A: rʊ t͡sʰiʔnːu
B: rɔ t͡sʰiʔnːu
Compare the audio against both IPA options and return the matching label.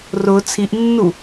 A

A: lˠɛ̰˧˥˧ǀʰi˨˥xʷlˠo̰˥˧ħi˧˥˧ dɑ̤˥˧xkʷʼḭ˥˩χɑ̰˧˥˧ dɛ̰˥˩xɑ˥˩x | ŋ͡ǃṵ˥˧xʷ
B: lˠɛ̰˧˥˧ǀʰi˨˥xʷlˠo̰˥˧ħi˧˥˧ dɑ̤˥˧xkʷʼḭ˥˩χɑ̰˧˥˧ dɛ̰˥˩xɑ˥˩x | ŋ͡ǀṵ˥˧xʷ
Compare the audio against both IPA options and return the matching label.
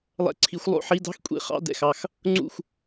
B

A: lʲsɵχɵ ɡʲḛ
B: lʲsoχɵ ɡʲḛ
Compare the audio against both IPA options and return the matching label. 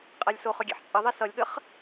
B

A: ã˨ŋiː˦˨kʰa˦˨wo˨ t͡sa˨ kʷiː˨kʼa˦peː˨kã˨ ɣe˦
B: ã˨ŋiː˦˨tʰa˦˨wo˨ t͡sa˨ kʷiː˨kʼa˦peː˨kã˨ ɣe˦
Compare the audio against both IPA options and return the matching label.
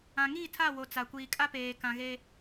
B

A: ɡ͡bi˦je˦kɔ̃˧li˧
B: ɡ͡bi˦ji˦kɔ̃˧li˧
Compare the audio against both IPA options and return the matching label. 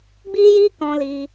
B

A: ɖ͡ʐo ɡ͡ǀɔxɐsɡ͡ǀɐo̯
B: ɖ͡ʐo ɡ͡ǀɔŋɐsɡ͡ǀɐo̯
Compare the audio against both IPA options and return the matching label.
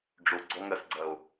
B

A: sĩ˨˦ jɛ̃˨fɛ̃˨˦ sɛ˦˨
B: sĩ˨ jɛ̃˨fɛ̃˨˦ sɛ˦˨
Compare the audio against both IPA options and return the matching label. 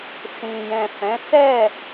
B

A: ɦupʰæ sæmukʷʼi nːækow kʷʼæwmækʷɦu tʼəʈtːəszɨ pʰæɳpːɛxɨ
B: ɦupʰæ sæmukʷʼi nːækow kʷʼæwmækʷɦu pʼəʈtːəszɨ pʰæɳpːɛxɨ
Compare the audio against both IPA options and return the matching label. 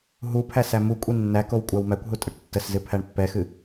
A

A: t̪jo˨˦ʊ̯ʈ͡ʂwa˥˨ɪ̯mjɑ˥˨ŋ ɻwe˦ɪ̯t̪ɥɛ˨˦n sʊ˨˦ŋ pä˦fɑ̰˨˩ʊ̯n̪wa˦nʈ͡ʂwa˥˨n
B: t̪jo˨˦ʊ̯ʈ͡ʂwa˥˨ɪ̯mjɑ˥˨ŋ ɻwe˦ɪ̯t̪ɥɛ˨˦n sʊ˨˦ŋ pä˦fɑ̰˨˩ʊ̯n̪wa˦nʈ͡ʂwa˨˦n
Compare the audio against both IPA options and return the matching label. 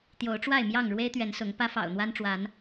B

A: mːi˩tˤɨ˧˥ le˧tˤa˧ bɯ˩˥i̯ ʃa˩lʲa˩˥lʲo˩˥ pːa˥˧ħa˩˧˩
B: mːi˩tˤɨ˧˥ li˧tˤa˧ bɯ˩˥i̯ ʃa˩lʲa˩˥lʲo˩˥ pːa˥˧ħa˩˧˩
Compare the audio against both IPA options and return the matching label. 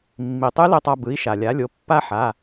A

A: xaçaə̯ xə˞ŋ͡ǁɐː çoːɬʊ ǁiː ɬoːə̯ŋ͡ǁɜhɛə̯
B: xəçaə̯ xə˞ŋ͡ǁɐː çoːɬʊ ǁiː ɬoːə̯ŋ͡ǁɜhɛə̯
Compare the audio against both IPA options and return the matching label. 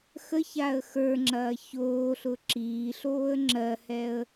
B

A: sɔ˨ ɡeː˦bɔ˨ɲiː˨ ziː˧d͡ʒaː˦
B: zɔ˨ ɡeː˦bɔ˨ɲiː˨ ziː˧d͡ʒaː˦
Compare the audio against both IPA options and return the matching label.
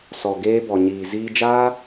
A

